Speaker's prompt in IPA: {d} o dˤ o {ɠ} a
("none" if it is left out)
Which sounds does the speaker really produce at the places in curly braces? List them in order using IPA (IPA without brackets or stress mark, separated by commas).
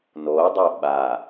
n, ɓ